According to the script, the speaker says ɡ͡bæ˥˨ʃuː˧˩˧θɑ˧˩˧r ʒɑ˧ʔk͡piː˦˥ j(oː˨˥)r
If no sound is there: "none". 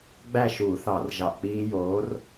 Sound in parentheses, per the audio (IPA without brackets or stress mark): oː˨˥